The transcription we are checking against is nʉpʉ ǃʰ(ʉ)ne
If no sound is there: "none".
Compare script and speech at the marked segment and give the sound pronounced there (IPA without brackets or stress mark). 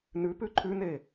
ʉ